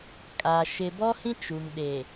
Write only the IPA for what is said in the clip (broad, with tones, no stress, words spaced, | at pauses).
kʼa˨ ʃɪ˨ bɔ˦hĩ˦t͡ʃu˨ŋ ɗe˨